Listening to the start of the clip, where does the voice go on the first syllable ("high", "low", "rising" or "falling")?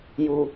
low